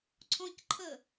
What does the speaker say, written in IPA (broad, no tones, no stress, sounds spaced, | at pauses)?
ǀʰ ɔ̃ c ǃʰ ə